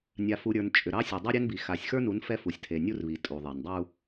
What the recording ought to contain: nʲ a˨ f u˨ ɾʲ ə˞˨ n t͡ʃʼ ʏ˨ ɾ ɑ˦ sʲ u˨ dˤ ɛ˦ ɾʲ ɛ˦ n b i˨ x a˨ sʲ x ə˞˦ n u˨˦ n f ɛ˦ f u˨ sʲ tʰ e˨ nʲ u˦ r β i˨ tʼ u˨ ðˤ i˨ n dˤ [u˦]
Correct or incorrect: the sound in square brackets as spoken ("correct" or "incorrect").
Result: correct